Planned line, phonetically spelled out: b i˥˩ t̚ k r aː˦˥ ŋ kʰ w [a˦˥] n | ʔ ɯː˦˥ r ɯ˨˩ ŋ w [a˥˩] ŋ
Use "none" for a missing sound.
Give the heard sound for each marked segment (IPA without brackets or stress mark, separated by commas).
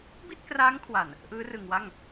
a˨˩, a˥˩